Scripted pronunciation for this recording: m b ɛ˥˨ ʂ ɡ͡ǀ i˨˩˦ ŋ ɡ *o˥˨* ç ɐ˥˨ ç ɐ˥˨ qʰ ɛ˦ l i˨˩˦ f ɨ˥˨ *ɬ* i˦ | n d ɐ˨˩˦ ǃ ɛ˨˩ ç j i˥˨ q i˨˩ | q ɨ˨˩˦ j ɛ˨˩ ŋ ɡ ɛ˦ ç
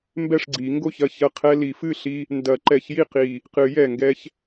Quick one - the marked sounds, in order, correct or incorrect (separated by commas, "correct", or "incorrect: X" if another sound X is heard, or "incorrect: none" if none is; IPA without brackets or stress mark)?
correct, correct